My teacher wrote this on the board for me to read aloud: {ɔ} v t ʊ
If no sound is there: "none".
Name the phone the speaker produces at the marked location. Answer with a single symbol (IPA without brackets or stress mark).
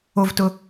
o